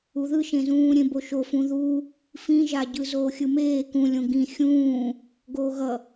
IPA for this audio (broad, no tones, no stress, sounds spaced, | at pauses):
u ð ɯ ʃ ẽ z ũː ɾʲ ẽ b o ʃ o f ũ ð u | f ĩ ʒ a ɟ ɯ z oː xʲ ɯ m eː k ũ lʲ õ ɡ ĩ xʲ ũː | ɡ oː ɣ ʌ